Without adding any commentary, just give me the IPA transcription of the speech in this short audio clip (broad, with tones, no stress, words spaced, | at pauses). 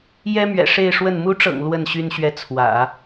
jɛ˥mɥɛ̰˨˩ ʂe˥˧ɪ̯ʂwə˥˩n mu˧˥ʈ͡ʂɤ̰˨˩ŋ lwə˥˩n ɕy˥nɕɥɛ˥˩ t͡sʰwä̰˨˩˦